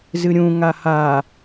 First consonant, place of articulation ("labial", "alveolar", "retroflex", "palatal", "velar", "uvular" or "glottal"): alveolar